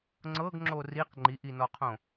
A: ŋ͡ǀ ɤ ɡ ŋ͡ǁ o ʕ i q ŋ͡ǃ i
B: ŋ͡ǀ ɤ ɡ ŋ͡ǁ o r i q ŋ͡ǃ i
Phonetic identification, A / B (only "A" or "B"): B